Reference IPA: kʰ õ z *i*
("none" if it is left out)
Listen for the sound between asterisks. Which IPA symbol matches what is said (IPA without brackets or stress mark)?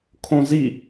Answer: i